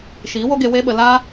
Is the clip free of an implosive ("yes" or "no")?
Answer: no